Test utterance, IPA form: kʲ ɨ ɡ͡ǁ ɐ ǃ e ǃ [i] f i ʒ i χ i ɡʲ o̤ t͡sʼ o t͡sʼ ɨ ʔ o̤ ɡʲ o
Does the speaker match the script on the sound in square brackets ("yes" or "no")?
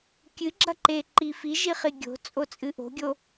yes